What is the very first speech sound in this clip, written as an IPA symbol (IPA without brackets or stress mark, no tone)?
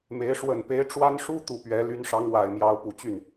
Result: m